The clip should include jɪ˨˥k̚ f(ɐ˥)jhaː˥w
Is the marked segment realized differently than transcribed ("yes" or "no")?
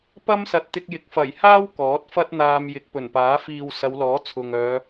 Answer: yes